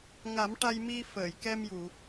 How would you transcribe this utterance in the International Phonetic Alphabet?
ŋa˨˩˦m ʈa˧jmi˧fəː˨˩˨jkɛ˧m ju˨˩˨

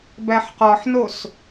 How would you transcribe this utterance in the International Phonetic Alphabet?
bæħqɒħnos

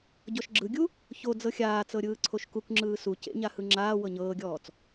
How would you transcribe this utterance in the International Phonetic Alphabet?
ɟɔʃɡ͡ǁɯɡʲu | ço d͡zɤxʲaːt͡sɤ ɾʲɯːǀʰoʃkukŋ͡ǁɯː su cḛɲa hɯŋ͡ǁaːwɤ ɲɤːɡʲɔːt͡s

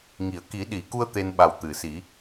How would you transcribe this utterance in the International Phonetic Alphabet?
ŋi˨˩˨ə̯ki˨˩˦ɗi˨˩˨ku˧ə̯ t̪e˧nɓa˨˩w t̪ɨ˨˩˨si˨˩˦

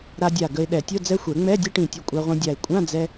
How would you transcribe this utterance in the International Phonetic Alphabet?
ɾa˧dʲa˧˩ ɡə˧ɪ̯ ɗɛ˨˩˦tʲo˧˥˧ d͡zɛ˦˥xʷɛ˨˩˦ ŋ͡mɛ˧˥˧dʲɐ˦˥ʈĩ˧˩tʲʊ˧˩ kʷʼa˧ʁʷĩ˧dʲa˧˩ɪ̯ kʷʼã˧˥˧d͡zɛ˧

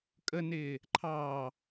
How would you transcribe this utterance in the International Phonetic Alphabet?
kʼənɪː | ǃʰɑː

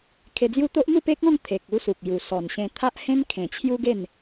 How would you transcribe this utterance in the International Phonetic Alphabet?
kʰe˧d͡zju˥˧ t̪o˦ʔn̪u˥˧ pe˦k̚ɔ̃˥˧ŋ t̪ʰe˨k̚ u˦su˨k̚ ju˨˩sɔ˨˩nɕẽ˧ t̪ʰa˦ʔhẽ˦n kʰẽ˨˩t͡ɕʰju˦ɡe˥˧n

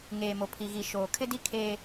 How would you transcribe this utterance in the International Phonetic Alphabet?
ŋeː˨mo˨pʰi˨ɣi˨ ʃoː˨ kʰɪ˦di˦ kʰeː˦

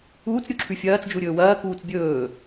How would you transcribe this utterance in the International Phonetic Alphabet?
uːt͡sɾʲuǁʰʉ fʲɐːt͡sd͡ʒuɾʲɵː wɐːkuːt͡s bʲɵː

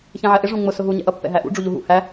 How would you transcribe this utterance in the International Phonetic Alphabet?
çɛ̃ʕɛʔɪ ʐũŋ͡mʊ sʊɦu ɲɛ̰ʔʌ pːɛ̰ɦæʔṵ ɖ͡ʐuʎuɦṵ hæ

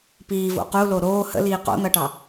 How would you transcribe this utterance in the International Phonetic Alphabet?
piːvo̰ qulo ɾoː hə̰liː qo̰n̪ʌʈɑ

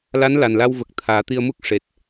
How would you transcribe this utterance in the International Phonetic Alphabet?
la˧˥nla˨˩nla˧wvə˨˩k̚ t̪ʰaː˨˩˦t̪i˧ə̯mu˦˥k̚ ʂe˨˩t̚

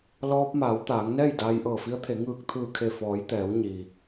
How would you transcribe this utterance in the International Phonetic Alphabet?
lɔː˧p̚maː˩˧w t̪aː˩˧ŋnɛː˥˨j daː˧jʔɤː˧˩fi˧˥ə̯t̪ʰe˩˧ ŋɯː˧˩k̚t̪ʰɯː˧˩kʰe˧˩ fɔː˩˧jt̪ɛː˩˧w ɲi˩

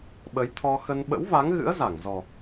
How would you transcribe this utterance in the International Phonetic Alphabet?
ɓə˨˦jt̪ʰɔ˧ xə˧n ɓə̰˧˥wva˨˦ŋ ɣɨ̰˧˥ə̯za˧˩ŋzɔ˨˩

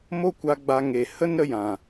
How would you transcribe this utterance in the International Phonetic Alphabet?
mo˦ kʷa˧ ɡ͡ba˨ ŋe˨hə˦nɾə˧jã˨

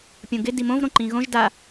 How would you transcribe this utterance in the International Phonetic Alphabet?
pʲõɡɪ dimõv ɾõǃĩɣõʒ da

